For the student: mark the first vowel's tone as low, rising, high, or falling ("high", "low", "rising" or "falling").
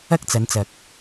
high